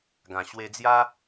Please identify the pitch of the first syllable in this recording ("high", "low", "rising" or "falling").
low